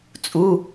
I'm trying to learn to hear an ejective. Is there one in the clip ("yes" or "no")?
yes